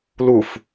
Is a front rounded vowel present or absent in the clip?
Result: absent